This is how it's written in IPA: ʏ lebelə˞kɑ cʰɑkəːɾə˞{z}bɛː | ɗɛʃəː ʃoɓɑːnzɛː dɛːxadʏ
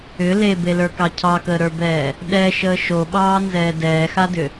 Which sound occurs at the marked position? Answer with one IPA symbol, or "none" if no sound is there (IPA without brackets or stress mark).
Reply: none